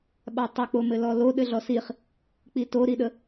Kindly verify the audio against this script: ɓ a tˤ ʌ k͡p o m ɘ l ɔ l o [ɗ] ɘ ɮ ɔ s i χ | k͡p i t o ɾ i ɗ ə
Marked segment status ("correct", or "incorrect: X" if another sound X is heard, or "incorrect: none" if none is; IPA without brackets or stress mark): correct